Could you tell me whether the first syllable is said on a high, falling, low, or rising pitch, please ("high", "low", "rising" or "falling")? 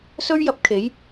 high